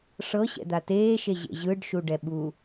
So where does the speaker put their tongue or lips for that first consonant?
retroflex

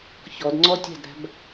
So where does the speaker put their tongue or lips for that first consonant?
palate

